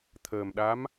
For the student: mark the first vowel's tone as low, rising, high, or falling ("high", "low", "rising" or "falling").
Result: low